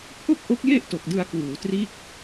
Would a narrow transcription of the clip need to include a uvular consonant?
no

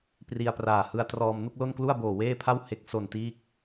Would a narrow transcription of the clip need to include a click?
no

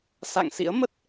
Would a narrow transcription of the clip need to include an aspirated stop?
no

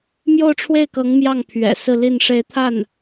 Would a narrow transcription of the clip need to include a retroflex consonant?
yes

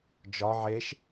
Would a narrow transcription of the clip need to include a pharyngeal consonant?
yes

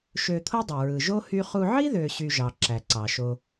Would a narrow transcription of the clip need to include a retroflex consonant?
no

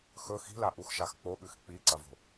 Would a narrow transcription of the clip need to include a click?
yes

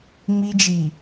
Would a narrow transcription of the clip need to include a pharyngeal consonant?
no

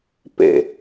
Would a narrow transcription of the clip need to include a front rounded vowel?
no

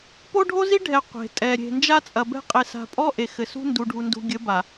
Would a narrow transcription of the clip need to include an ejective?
yes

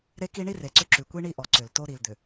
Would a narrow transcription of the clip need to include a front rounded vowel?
yes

